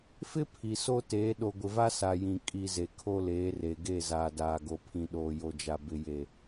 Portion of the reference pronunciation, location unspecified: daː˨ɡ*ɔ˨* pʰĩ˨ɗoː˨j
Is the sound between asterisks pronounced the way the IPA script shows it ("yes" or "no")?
no